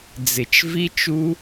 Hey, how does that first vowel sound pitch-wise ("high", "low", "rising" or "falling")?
low